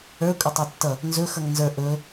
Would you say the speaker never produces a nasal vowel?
yes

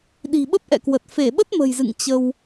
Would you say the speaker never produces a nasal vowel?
yes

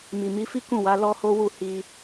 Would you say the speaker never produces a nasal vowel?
no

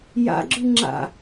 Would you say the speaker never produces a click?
no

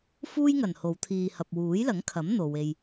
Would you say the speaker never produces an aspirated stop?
no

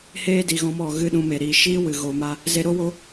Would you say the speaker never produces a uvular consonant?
yes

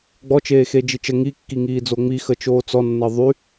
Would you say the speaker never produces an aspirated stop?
yes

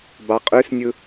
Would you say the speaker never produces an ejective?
no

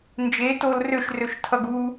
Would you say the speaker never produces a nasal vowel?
yes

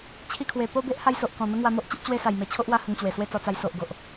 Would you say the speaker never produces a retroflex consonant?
yes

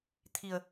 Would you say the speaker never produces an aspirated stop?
no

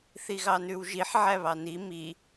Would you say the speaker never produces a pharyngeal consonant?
no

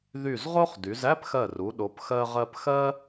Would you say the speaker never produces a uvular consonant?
no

